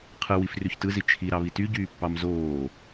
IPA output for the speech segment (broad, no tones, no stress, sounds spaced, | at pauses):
qʰ ɯ w i f r y ç t ɯ z i t͡ʃʰ i ɾ ɑ β i t y ɟ yː pː ɑ m z oː